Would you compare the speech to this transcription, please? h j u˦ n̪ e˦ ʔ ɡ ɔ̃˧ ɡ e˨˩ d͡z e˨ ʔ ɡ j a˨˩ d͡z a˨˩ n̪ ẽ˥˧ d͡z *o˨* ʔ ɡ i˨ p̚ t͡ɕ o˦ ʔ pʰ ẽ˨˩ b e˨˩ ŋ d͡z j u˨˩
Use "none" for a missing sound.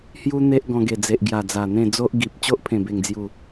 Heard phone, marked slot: o˦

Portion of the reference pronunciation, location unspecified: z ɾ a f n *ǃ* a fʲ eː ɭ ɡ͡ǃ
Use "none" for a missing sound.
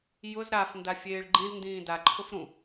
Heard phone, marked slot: d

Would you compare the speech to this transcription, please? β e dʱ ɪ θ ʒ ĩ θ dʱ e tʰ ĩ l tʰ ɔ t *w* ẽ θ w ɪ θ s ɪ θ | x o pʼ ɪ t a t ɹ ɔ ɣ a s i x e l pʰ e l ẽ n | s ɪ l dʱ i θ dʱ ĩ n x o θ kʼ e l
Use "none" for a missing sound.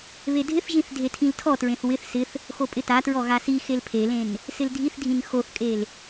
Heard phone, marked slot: ɹ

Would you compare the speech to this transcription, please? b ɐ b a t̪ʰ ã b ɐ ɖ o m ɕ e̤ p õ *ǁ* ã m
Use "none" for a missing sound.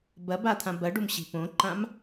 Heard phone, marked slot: ǃ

